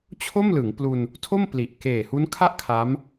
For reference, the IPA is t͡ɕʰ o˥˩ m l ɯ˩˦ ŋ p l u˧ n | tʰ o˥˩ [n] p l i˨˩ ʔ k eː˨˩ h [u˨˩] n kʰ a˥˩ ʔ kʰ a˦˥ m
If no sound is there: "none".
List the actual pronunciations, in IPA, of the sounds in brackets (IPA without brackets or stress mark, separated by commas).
m, u˦˥